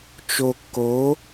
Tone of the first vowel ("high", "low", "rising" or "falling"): low